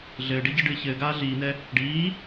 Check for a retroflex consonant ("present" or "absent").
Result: present